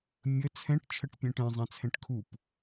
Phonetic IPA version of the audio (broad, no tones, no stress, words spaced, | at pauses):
mʲə t͡sʰɛ̃ʈ t͡ʃʰəʈpʲɛ̃ʈɛ̃ zˤãt͡sʰɛ̃ʈkʰup